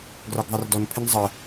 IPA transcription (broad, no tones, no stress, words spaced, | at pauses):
ɡrɒɡðˤirdɔn pʰɪnzˤə